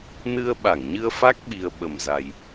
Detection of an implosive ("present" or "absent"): present